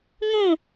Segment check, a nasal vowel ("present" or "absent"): present